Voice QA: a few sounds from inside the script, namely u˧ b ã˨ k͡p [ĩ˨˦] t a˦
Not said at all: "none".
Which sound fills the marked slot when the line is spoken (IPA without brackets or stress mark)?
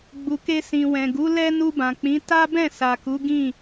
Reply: ĩ˨˦